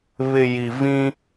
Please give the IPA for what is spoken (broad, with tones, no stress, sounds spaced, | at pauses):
β ɪ˨ j i˨ v ĩ˦